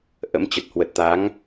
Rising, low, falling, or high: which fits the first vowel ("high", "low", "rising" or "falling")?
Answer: rising